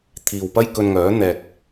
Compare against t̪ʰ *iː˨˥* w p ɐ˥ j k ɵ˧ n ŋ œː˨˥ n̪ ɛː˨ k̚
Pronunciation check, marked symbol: incorrect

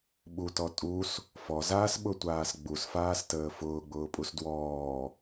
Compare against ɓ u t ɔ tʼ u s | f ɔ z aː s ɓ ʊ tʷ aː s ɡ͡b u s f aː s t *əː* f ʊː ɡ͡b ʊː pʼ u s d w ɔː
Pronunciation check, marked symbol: correct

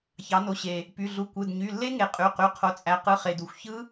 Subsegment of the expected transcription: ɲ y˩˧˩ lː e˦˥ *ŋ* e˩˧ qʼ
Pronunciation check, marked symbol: correct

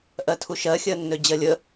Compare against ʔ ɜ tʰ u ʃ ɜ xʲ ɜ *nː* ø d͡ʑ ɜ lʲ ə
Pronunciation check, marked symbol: correct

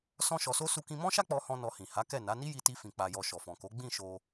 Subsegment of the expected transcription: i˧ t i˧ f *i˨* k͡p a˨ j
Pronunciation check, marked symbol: incorrect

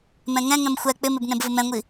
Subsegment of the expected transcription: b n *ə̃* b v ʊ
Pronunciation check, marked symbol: incorrect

